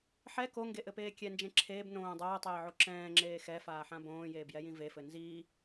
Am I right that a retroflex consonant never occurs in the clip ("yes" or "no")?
yes